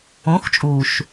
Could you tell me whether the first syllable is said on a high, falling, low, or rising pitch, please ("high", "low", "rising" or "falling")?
rising